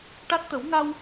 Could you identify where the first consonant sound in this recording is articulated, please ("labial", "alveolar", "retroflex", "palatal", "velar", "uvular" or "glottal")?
retroflex